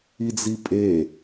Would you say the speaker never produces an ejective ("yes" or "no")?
no